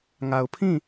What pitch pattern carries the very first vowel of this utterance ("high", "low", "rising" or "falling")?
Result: low